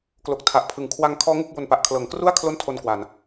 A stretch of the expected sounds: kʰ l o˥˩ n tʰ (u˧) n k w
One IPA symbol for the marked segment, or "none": o˧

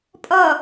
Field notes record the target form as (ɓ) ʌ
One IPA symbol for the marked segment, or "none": pʼ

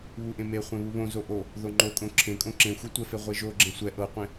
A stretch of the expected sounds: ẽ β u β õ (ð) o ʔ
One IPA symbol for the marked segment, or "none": z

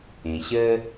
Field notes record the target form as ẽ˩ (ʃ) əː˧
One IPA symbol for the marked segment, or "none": ɕ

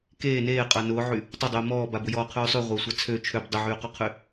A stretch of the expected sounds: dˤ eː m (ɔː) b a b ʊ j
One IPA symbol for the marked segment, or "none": ɔː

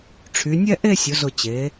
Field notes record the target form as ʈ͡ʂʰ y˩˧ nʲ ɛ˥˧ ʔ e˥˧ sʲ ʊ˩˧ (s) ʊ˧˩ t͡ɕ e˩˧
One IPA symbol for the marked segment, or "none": z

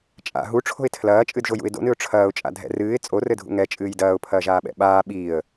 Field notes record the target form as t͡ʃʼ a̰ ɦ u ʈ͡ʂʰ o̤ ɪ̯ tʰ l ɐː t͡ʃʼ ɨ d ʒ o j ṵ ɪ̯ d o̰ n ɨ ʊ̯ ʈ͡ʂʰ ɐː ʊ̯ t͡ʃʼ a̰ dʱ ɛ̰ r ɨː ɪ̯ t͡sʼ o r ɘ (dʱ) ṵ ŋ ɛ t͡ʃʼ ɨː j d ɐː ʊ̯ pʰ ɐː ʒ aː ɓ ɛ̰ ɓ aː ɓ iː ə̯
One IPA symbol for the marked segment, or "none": dʱ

